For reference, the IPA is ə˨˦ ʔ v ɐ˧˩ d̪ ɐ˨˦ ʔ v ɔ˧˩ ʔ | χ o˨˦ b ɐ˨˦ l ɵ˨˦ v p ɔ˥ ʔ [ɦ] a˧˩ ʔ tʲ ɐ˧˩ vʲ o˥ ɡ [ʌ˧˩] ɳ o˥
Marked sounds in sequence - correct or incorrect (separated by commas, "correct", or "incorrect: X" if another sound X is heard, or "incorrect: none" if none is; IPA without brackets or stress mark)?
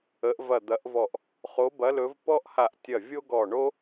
incorrect: h, incorrect: ɔ˧˩